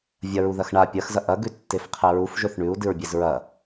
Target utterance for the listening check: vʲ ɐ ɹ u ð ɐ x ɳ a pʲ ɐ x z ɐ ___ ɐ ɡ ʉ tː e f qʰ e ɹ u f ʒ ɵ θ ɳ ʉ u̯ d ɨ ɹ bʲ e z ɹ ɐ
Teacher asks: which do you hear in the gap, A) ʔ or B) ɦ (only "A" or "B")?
A